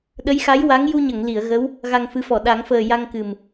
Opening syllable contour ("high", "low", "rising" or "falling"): rising